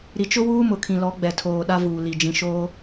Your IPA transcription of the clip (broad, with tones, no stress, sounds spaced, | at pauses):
ɾ i˨ t͡ʃ ʊ˦ w uː˦ m ʊ˨ kʰ ĩ˨ l ɔ˨˦ ɡ͡b ɛ˨ tʰ oː˨ ɗ a˦ v uː˨ l i˨ d͡ʒ ĩ˨ ʃ oː˦